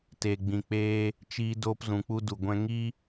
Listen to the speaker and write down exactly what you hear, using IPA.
te˧ɡ͡bĩ˧k͡peː˦ | t͡ʃiː˦ doː˦pzũ˧k͡pu˦ du˨ɡʷɛ̃˧ ŋi˦

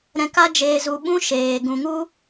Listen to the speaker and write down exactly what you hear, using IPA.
ɾɛ̃˧ka˦ d͡ʒeː˨zu˨ɓũ˧ ʃeː˨ ɡũ˨ŋu˦

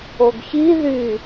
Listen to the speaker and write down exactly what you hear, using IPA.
oɡçi ðy

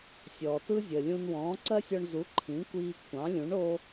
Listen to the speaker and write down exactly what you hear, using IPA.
sʲɔː˩tɯ˥ zʲəː˩lʲũ˧nwɔ̃ː˩˥ ǀɜ˥sʲɔ˧ɳzu˩˥ ǃʰĩ˩˥kʷiː˧kʷʰɑ̃˩˥lʲũ˩˥ɳ o˥

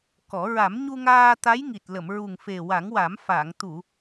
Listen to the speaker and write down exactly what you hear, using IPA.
kɔ˨˩˦ ɹa˨˩˦mɲu˧ŋaː˧ t̪a˧˥jŋi˨˩t̚ lə˨˩˨mɹu˨˩ŋfe˨˩ wa˨˩˦ŋwa˨˩˦m fa˨˩˨ŋ t̪u˨˩˨

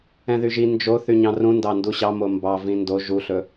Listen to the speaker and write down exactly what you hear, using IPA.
ɛ̃ðyʒi nd͡ʒo θyɲɑ̃rũndɑ nduɕɑmo mbɑ vĩndo ʒuɬɵ

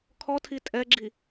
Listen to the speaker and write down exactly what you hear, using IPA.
kʰɔtʰi tʼɛɡ͡ǁi

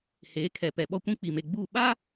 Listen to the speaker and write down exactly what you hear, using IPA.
heː˨˦kʰɛ˨pɛ˨ɓɔ˦ kʷĩ˦k͡pi˨me˨ɡ͡buː˦˨ ɓa˦

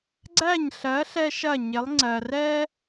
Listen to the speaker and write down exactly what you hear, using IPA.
ɡ͡ǀæ˥˩ɲɬɜ˩˥ ɬɛ˥ʃɐ˥˩ɲɪ˩˥lˠ ŋ͡ǀɜ˩rɛ˥

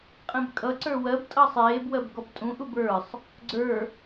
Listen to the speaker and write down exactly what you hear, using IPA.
qʼẽbkʼʌǀə˞ wɜbtʼʌ sˤeːbwɜb ɡɔbtʼũʔub ə˞sˤ | ɡ͡ǀə˞

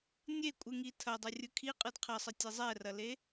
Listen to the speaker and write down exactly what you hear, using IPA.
nʲekʷʼɯŋi tʰɐdˤɐ rʲɯkʰiqʼɯd qʰɐsˤə tʲezˤɛrɐle

